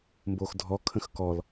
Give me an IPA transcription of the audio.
mboxdʱɔ kʰə̃xkɔl

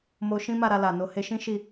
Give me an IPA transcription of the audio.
mo˧ʃĩ˦ma˦˨ɾa˧ la˨ no˨he˧ʃĩ˦ ʃi˦˨

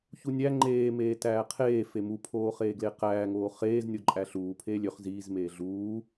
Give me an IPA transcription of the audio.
çunʲæ ŋ͡ǃeː meːtæːqʰeː femu pʰoːχeːɡleqæː ŋoːχeːz nʲoǃʼæɬuː pʰeːlʲøχ ziːz meːɮuː

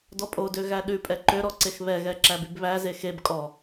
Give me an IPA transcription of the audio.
dɔpʼodø ɣæɗʉpʼɛ ǃøɾɔ ǀexβɛɣɛ ǁæbybβæze xeb kʼɔ

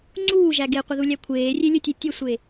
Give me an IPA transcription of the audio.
ŋ͡ǀuːʒæ ɡeqʷəðulʲæ kʷʰeːrʲelʲɵtʲe tʲɵsʷe

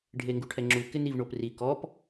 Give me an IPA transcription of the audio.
ɖʱeŋɡuʈʰɛŋ͡ǁu kɪnivɳopri kɔp

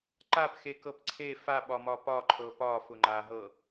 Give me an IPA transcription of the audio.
ǃapxekɤp ǀʰe faɓɒmɒ pɒǃʰɤ pɒfʊ ŋ͡ǃaɦɤ

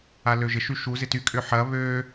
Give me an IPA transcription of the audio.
aløʒɪ ʃyʃu zɪty kʼʏħɐ βø

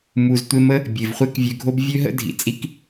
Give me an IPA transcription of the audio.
mu˩ztʷe˧mə˥ | bʲe˩vχʷe˥kvʲø˧ɡʱo˥b vʲø˥ɦə̰˥dʱḭ˩ t͡sʼi˥k

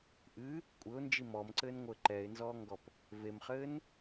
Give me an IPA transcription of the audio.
ʔɨ | kʷʼɘʊ̯nd͡ʒi mɔmǀɘːnŋʷɘː ǃɛɪ̯nzɔːŋɡɔp | vemχɘːn

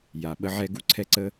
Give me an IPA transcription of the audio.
ja˨ɓə˧ʕɛ˧ ɡu˦ǀʰɛ˧ǀə˧

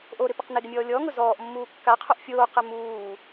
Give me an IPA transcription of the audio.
ʔoɾɪpɪq neɡɪmʲɔː lʲɔŋʊ zɔːʔmːuː kːaqʰoʔ fʲoːqɛ muː

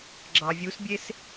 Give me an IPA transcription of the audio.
ɡ͡ǁɑvʲusbʲes

